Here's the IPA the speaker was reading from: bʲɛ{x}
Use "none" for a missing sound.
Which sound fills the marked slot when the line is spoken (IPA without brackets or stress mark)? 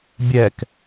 k